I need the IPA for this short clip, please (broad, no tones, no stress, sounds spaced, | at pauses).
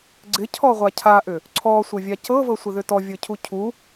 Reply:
ɡ͡ǀ ɪ cʰ ɔ ʁʷ a cʰ a ʔ ʏ | ǀʰ ɔ sʷ ə vʲ a c ɤ v ɤ sʷ ɪ ð ʏ t ɔ vʲ ɤ cʰ u cʰ u